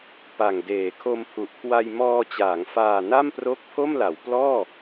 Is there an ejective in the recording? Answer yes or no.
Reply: no